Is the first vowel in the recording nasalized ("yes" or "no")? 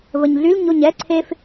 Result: no